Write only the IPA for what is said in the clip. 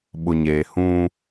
ɓʊ˨ɲeː˨hũ˦

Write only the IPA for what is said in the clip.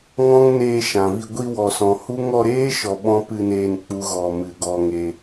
ŋɔ̃˦ŋneː˧ ʃã˨vi˧ ɡʷi˧wɔ˨sɔ̃˨ hu˦ ŋɔ˧ɾeː˦ ʃɔ˧ɓɔ̃˦ pɨ˧neː˧n k͡pu˦ɣɔ˧ mɨ˨ɡɔ˧ŋe˧

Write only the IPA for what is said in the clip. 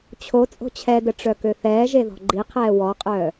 t͡ɕʰo t͡sʼo̤t͡ɕʰɛdə ʈ͡ʂœkøθɛːʒe ðɔ̤ɡ͡ǃiqʰɛː wɔqʼœː

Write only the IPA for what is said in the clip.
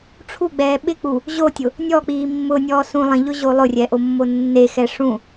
ʈ͡ʂʰuɡ͡bɛː ɓɪk͡pu | ʑotʲʊ | nʲɔk͡piː mːʊnʲɔː sũ lˠĩʎʊʑo lˠʊrʲɛʔomːo nːexɛ ʂũ

